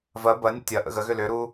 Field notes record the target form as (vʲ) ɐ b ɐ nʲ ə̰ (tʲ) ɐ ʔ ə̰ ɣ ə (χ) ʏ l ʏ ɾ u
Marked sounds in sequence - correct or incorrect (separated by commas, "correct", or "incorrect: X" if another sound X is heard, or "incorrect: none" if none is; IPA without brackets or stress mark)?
incorrect: v, correct, incorrect: ɣ